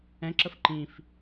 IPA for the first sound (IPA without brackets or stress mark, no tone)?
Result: ɛ̃